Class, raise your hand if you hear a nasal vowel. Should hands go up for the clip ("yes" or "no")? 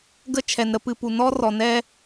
no